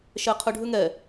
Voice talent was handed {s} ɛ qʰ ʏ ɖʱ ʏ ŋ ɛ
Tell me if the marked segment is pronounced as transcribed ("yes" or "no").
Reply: no